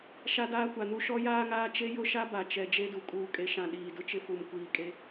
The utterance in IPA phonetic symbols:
ʃ a˦ d aː˦ kʷ a˨ n u˦ ʃ ɔ˦ j aː˦ ŋ aː˦ t͡ʃ e˦ j ʊ˦ ʃ a˦ b a˨ t͡ʃ ɛ˨ d͡ʒ e˦ d u˨ kʼ uː˨ kʼ e˨ ʃ ã˨ ɗ iː˨ d ʊ˦ t͡ʃ ɪ˦ f u˨ m kʷ iː˨ kʼ e˦

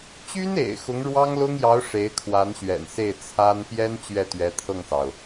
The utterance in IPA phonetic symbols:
t͡ɕ y˥ n ḛ˨˩ ɪ̯ x ʊ˧˥ ŋ ɻ w ɑ˥ ŋ l ʊ˥ ŋ j ɑ˧˥ ʊ̯ ʂ e˧˥ ɪ̯ kʰ w a˧˥ n ɕ ɥ ɛ̰˨˩ n s e˥˩ ɪ̯ t͡sʰ a˥ n p j ɛ˥ n t͡ɕ ɥ ɛ˥˩ t̪ ɥ ɛ˧˥ t̪ʰ ɤ˥˩ ŋ s ɑ˩ ʊ̯

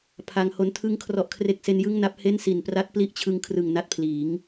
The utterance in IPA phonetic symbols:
pʰ a˧ ŋ h o˦˥ n tʰ ɯ˥˩ ŋ kʰ r ɔ˥˩ ʔ kʰ r e˦˥ k̚ s e˦˥ n j ɯ˥˩ ŋ n a˦˥ p̚ h e˥˩ n s i˨˩ n p r a˦˥ t̚ p l i˦˥ ʔ t͡ɕʰ ɯ˧ ŋ kʰ r ɯ˨˩ ŋ n a˦˥ t̚ pʰ l iː˩˦ ŋ

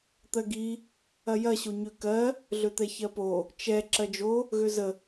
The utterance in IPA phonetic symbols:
t̪ ɜ ɡ i | ɐ j ɐ ɕ o ɲ ø k ɜ | ɮ ø t̪ ɛ ç ɜ p o | t͡ʃ ɛ ǁ ɜ d͡ʒ o | ɣ ø z ə

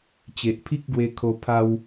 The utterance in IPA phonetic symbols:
t͡ɕ e˨ ʔ pʰ i˦ k̚ ɡ w e˧ kʰ o˧ pʰ a˦ w

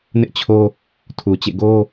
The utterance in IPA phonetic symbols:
n ɪ˦ ʔ t͡ɕʰ o˦ | tʰ u˨ t͡ɕ ḛ˦˨ ɡ o˦

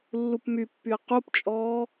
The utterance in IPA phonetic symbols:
lː u p m y pː y ə̯ q u p t͡ʃʼ ɔː

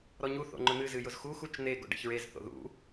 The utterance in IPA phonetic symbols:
ɾ ɔ ɲ u θ o̰ ŋ͡ǃ ʊ n̪ ɨ z ɨ j ʊ z x u x u t͡ʃ n̪ e ɡ o̰ ɖ ḛ ç ɹ e z θ o̰ ð ṵ

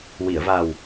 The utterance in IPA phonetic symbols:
w i˨˩˨ ə̯ v a˨˩ w

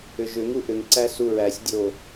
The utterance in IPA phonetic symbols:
ʏ ʒ ʏ ŋ u ʔ ʏ ŋ ǀ æ s u ɹ æ sʲ dʲ o

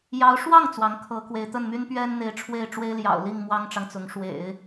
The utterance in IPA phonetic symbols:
j ɑ˧˥ ʊ̯ ʂ w ɑ˥˩ ŋ t͡s w ɑ˧˥ ŋ kʰ ɤ˧˥ k w e˧˥ ɪ̯ t̪ ə˥˩ n m y˥ n p ɥ ɛ˥ n n̪ e˧˥ ɪ̯ ʈ͡ʂʰ w e˥˩ ɪ̯ ʈ͡ʂ w e˥ ɪ̯ l j ɑ̰˨˩ ʊ̯ l i˥˩ ŋ m w ɑ˥ ŋ ʈ͡ʂ ɑ˨ ŋ t͡s ʊ˧˥ ŋ ʂ w ḛ˨˩˦ ɪ̯

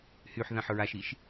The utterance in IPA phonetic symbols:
h y ħ ð ã ħ ɹ a ʃ i ʃ

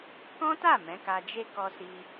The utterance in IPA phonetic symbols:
k ɔ̃˦ t a˦˨ m ɛ̃˨˦ k a˧ d͡ʒ e˦ k ɔ˧ s i˧

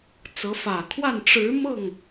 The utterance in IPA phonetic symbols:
t͡s ɤ˧˥ f ä˨˩ kʰ w a˥˩ n ʈ͡ʂ ɻ̩˧˥ m ɤ˥˩ ŋ

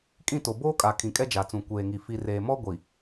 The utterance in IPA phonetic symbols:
kʼ ĩ˦˨ t o˨ b oː˦ kʼ a˨ kʰ ĩ˨ kʼ ɛ˦ d͡ʒ a˨ t͡s ũ˨ kʷ eː˨ ŋ i˨ f i˨ r eː˨ m ɔ˦ ɡʷ i˨

